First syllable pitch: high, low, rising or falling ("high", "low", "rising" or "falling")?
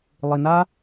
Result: low